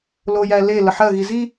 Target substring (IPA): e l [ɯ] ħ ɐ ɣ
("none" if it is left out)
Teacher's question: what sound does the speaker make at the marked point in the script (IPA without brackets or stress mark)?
ə